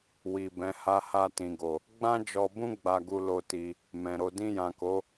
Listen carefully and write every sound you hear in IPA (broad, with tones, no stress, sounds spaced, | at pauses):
w i˨ b ɛ̃˨˦ h a˧ h a˧ t ĩ˨ ɡ o˨ | ɡ͡b ã˦ d͡ʒ ɔ˧ b ũ˦ ɡ͡b a˧ ɡ u˧ l o˧ t i˧ | m ɛ̃˨ ɾ o˧ d ĩ˧ j ã˨ k o˨˦